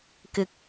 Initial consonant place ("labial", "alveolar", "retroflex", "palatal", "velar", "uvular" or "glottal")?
velar